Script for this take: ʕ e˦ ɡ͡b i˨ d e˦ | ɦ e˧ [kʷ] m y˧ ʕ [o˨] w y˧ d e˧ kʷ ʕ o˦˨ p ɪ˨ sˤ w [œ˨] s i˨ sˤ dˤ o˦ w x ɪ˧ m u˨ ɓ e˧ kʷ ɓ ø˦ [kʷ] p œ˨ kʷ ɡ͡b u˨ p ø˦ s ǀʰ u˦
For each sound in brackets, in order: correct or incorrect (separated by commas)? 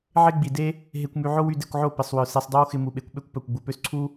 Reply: correct, incorrect, correct, correct